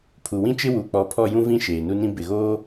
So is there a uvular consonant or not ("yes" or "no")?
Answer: no